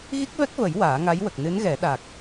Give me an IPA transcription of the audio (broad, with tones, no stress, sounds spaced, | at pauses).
ɣ i˦˥ k̚ v ɛ˦˥ k̚ v ə˨˩˦ j w aː˨˩˦ ŋ a˧˥ j w ə˨˩ k̚ n ɨ˧˥ n ɣ ɛ˨˩˦ ɗ a˨˩ k̚